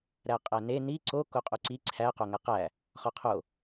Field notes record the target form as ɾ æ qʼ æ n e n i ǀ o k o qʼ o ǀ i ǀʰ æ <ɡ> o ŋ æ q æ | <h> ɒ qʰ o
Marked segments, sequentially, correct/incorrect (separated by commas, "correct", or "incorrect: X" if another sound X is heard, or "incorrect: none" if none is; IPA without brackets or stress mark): incorrect: q, incorrect: χ